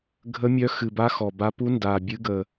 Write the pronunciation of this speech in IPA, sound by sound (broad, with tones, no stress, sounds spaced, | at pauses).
ɡʱ ə˧˥ mʲ œ˧˥ x ɨ˨˩ b a˧˥ x ɔ˨˩ b a˧˥ p u˧˥ n d a˨˩ bʲ ɨ˧˥ ɡ ə˨˩